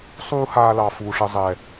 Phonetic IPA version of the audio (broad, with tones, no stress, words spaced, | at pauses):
sˤuː˦haː˧lɑ˨ fuː˨ʂə˧zˤɛ˨